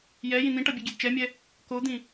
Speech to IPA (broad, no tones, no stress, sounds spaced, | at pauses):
j ɛ j ĩ n̪ ĩ ʈ ʌ bʲ e ɡʲ e d t͡ʃ ɛ mʲ ɛ | k o d̪ ĩ